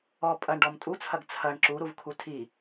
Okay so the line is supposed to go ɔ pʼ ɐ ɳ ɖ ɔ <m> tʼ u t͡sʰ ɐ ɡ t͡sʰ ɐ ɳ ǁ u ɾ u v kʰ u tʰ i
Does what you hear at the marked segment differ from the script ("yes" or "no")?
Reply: no